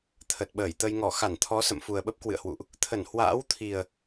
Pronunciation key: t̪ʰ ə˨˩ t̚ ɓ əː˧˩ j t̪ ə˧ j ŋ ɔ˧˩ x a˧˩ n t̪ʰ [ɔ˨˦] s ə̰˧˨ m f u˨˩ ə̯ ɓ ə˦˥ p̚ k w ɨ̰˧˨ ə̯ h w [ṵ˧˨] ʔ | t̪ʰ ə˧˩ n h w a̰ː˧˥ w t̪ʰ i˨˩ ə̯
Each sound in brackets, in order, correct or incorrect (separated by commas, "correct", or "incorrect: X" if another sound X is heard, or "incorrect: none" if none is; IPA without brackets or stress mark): correct, correct